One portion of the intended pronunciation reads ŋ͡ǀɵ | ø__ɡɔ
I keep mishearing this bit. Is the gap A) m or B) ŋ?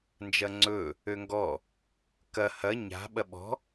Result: B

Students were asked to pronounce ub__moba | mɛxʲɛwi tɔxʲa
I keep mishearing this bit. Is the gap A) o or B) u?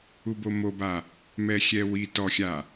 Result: A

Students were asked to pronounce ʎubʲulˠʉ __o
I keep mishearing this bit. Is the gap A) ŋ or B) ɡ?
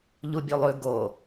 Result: B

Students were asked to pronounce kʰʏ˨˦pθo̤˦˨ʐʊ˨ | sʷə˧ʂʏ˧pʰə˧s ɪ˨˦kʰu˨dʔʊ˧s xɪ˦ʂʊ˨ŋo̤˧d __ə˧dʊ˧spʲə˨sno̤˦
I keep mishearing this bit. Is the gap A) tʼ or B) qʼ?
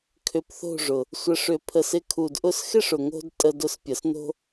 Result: A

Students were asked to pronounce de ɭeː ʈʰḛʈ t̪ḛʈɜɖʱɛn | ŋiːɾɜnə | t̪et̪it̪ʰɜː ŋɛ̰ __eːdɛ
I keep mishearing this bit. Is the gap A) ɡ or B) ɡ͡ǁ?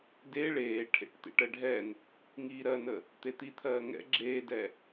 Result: B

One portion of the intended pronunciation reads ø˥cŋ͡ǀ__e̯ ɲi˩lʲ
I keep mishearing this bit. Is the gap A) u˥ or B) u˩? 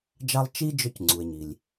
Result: B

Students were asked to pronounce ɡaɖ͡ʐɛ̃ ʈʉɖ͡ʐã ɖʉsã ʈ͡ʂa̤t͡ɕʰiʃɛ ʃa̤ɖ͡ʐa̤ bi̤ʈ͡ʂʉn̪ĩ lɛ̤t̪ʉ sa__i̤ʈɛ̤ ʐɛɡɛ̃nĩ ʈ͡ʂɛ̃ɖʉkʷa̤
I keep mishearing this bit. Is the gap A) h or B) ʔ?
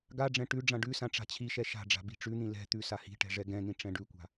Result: A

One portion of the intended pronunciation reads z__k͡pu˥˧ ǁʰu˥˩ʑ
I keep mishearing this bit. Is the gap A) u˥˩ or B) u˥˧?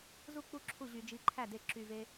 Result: A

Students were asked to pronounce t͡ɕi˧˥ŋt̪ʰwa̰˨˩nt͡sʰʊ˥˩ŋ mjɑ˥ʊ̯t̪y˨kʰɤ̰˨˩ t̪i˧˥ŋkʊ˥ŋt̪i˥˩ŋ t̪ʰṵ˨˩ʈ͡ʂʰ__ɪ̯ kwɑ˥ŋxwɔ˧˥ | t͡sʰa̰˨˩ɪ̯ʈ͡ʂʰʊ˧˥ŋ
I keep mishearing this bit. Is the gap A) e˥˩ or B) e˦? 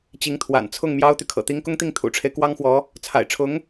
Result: B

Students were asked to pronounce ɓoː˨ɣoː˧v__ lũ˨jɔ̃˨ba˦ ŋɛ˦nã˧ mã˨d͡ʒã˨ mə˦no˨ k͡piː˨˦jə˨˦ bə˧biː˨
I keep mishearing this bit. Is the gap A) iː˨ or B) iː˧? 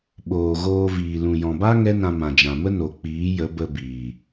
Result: A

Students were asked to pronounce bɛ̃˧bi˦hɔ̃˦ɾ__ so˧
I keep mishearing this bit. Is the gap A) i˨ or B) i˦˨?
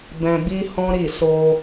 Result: B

